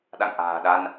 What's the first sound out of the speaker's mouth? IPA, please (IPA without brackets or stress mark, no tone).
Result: ɗ